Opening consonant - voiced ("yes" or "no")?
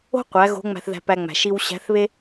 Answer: no